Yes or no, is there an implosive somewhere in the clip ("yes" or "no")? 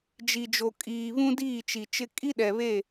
yes